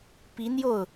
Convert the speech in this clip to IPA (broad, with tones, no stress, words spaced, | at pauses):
pi˧˥n̪jo˥˩ʊ̯